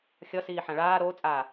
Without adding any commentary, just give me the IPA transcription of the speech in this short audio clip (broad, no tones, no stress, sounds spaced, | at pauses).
xʲ ʌ s iː ħ ã ɭ aː ɾ oː t͡sʼ aː